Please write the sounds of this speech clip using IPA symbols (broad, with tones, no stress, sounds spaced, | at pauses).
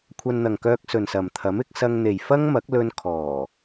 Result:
kʷʰ ɐ˧ n n̪ ɐ˨ ŋ k œː˧ k̚ s ɵ˨ n s ɐ˨ m t̪ʰ ɐ˨˥ m ɪ˧ k̚ s ɐ˧ ŋ n̪ e˨ j f ɐ˥ ŋ m ɐ˨˥ k̚ l ɵ˧ n kʰ ɔː˨˩